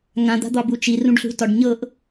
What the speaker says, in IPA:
ŋãd̪a̤d̪ɒbu t͡ʃirũɖɬṳtɒɖ ɲɤʔ

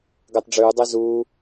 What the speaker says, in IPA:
ɡəːtˤɖ͡ʐʉːdˤe zuː

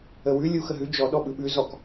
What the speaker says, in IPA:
əwʉ lʲu xəɦʉ d͡ʒɔ ɗɔɓɯɓʉ zɔk

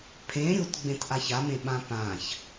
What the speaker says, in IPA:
pʰẽ ɾʲut ɡ͡bẽtʔaçamẽ ɓãpãç

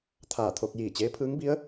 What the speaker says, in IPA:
t̪ʰaː˧˩t̪ʰo˧k̚ jiː˧˩t͡ɕeː˧˥pʰɯː˧˥ŋbi˧˥ə̯

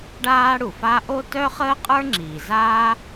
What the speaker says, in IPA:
ɖaː˥ɽu˩fa˥ ʔo˥tœ˥ χəː˥qʼə˞˥ŋ͡ǁiː˩zaː˥

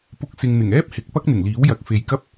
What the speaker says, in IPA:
pʊ˧k̚sɪ˨ŋn̪ɪ˨˩ŋ ɛː˥p̚hɪ˨˥k̚ pɐ˥k̚n̪ɪ˨˩ŋliː˨˥wjɐ˨˥k̚ fe˨jkɐ˥p̚

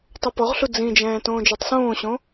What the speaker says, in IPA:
tˤopɔʁɬu d͡zĩd͡ʒɛ̃ː tõːd͡ʒotˤsõːɕõ

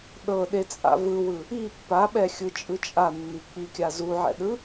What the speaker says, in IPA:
ɗɤɗet͡sʼa̰ vɯwɯ | i pːaɓɛxʲɯt͡ʃʼɯ t͡ʃʼanːi k͡pikʲa zuʕɛ̰ɗɯ

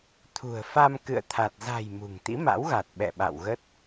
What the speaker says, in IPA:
t̪ʰṳ˨˩ə̯fa˧m kɨ̰˧˨ə̯t̪ʰa˨˩t̚ za̤˨˩j mṳ˨˩ŋt̪ḭ˧˥ma̰˧˥wɣa˨˩t̚ ɓɛ̰˧˨ɓa̰˧˨wɣə˦˥t̚

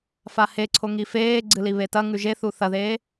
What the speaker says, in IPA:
faheǀʰo ŋifeːɡ͡ǀɨ liβetɐŋʉ ʒeθu θɐðeː

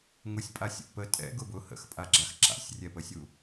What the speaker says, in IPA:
ŋʊsʲpʼasʲṵ pə tʼɛ̰ ɡʊbʊ hə̰xpʼaɡ͡ǁax ǁa̰sʲrʲɛpəsʲu

